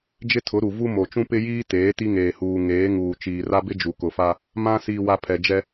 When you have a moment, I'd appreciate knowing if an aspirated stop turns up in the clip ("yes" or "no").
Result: yes